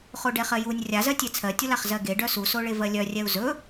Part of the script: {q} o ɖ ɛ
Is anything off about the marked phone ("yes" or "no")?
yes